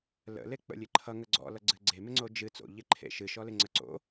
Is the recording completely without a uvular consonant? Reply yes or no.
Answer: yes